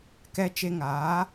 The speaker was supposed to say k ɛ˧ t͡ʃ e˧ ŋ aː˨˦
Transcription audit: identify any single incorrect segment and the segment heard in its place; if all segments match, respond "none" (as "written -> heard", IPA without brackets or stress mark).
none